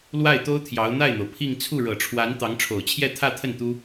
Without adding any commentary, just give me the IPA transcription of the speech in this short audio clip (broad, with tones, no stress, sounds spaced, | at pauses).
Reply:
l w a˥˩ ɪ̯ t̪ o˥ ʊ̯ t̪ʰ j ɑ˧˥ ʊ̯ n̪ a˥˩ ɪ̯ n̪ o˩ ʊ̯ pʰ i˥˧ ŋ t͡sʰ u˥˩ ɻ ɤ˨˩ ʈ͡ʂʰ w a˧˥ n t̪ ɑ˧˥ ŋ ʈ͡ʂʰ o˨˩ ʊ̯ t͡ɕʰ j ɛ˥˧ t̪ʰ ä˥˧ t̪ʰ ə˥˩ n t̪ u˥